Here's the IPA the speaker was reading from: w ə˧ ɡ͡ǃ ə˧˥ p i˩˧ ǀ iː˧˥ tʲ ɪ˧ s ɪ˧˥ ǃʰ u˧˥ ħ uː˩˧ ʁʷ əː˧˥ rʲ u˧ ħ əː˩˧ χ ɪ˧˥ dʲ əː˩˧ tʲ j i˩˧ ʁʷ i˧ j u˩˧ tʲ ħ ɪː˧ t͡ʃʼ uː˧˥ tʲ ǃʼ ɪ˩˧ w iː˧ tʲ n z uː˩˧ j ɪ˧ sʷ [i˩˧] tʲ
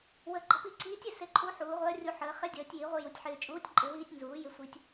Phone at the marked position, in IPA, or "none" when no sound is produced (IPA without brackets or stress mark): i˧